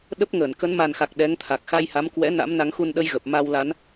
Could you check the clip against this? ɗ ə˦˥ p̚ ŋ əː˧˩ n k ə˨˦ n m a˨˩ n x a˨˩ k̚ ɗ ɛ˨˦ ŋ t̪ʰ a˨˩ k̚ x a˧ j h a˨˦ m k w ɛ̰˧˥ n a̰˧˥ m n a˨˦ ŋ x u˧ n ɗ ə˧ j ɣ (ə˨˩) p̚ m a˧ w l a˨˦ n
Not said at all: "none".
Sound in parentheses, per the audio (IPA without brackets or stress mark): ə˨˩